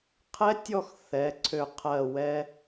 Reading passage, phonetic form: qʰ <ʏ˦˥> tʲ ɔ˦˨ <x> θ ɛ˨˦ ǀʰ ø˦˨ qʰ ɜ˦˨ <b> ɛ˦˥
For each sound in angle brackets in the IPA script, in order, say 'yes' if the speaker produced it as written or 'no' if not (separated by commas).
no, yes, no